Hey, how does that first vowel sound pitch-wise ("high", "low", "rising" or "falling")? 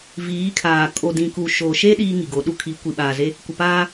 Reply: rising